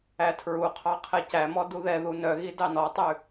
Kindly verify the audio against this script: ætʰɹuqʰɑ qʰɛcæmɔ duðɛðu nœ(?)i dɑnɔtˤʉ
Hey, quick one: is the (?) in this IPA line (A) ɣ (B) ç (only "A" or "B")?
A